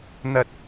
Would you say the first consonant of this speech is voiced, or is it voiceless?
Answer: voiced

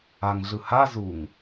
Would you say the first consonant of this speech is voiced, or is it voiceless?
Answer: voiced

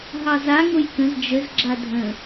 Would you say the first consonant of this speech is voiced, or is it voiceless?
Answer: voiced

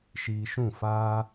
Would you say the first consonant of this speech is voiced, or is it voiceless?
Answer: voiceless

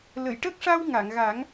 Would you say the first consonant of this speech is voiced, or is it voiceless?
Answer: voiced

